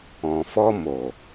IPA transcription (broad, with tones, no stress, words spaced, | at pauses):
ɔ̃˨fɔ˧ mo˨